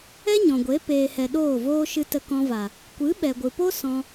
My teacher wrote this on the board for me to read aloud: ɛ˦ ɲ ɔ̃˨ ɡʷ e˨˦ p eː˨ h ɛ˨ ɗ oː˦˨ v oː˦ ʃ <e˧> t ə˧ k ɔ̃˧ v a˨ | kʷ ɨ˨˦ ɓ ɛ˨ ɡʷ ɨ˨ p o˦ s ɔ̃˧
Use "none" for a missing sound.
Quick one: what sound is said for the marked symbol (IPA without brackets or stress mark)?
ɨ˧